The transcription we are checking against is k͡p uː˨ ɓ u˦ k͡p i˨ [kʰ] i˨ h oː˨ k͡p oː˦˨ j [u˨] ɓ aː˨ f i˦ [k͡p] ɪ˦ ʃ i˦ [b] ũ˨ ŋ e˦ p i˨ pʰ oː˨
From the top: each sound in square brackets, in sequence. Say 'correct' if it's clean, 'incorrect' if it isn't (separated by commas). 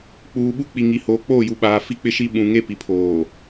incorrect, correct, correct, incorrect